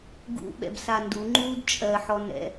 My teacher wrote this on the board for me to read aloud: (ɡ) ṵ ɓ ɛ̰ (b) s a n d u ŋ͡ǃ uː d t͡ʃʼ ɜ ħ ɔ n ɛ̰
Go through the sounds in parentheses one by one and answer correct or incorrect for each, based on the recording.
correct, correct

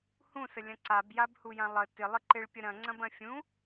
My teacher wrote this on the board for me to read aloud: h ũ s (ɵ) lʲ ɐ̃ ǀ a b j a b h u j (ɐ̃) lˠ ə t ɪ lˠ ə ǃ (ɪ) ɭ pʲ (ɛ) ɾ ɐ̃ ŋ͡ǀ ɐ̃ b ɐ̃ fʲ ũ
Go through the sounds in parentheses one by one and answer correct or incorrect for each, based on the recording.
incorrect: ə, incorrect: ã, correct, incorrect: ə

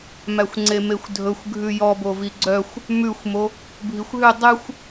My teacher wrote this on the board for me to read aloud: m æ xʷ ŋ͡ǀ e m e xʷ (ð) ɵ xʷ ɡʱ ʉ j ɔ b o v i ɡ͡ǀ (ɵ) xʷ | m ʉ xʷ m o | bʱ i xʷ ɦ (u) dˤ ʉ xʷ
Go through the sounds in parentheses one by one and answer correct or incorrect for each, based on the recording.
incorrect: dʱ, incorrect: œ, incorrect: ʉ

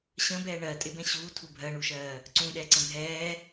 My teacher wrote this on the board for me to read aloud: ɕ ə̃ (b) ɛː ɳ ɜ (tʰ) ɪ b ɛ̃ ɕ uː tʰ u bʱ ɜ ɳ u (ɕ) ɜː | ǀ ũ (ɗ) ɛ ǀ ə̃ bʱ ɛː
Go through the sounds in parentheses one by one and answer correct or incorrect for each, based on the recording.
correct, incorrect: tʼ, incorrect: ʃ, correct

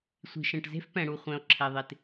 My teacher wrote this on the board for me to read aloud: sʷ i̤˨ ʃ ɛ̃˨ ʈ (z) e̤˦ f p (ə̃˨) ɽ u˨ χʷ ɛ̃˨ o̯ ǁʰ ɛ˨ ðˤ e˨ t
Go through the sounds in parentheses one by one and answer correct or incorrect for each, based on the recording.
correct, incorrect: ɛ̃˨

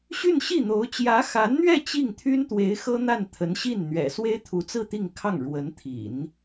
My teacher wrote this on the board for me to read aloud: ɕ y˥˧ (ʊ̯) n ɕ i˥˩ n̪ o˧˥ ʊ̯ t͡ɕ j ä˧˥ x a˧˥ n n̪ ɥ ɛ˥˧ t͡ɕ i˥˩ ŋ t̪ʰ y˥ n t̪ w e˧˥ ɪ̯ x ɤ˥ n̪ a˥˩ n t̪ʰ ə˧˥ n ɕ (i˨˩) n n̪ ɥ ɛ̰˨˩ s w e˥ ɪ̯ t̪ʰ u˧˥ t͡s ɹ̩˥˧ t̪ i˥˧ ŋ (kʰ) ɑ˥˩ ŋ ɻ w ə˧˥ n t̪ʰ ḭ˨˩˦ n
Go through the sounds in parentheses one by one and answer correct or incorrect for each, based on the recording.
incorrect: none, incorrect: i˥˩, correct

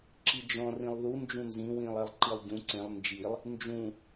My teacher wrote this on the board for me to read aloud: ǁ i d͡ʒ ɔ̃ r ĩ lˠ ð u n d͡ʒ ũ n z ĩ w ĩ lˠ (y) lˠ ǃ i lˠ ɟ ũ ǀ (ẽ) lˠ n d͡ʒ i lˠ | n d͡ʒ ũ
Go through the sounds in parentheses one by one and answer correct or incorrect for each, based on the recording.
incorrect: e, correct

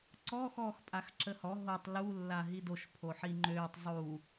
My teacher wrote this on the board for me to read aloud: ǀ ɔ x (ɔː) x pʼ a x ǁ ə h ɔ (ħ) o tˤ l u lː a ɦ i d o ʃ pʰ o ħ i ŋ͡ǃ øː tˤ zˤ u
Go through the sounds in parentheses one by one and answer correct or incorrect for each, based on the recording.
correct, incorrect: ɦ

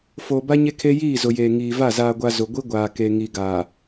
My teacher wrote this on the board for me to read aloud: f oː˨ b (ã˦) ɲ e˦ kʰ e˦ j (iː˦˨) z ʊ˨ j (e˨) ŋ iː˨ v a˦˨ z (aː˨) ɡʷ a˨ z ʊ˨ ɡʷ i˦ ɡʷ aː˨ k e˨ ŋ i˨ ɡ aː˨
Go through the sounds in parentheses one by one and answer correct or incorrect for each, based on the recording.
incorrect: a˦, correct, incorrect: eː˨, correct

